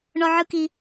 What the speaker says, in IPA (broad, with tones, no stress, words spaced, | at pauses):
ɳɔ˥ʕɯ˥ki˥